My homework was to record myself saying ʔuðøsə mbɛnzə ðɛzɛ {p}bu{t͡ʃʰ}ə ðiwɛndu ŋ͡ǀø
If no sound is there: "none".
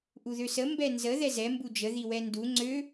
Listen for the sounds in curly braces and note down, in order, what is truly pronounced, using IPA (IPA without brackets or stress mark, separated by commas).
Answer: m, d͡ʒ